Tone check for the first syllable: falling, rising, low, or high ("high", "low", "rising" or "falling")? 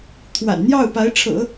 low